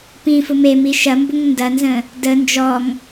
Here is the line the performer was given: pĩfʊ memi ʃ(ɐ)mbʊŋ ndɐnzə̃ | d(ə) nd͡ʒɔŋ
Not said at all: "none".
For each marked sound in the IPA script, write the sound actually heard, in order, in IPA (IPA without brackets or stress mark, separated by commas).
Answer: ɐ, ə